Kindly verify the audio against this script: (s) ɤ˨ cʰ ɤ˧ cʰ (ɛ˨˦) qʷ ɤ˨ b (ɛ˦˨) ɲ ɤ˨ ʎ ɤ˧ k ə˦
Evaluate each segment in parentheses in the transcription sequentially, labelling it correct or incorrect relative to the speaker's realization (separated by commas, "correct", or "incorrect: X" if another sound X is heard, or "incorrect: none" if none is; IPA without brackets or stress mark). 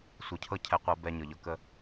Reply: incorrect: sʷ, incorrect: ɛ˨, incorrect: ɛ˨